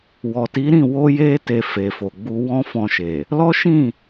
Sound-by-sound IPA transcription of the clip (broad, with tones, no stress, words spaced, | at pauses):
wɔ˨ti˨˦ɾĩ˦˨ wo˧je˧te˨ fe˨fo˨ɡ͡bu˧ wɔ̃˦fɔ̃˧ʃe˨ | lɔ˦ʃĩ˦˨